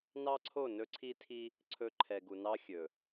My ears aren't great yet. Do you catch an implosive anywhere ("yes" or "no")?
no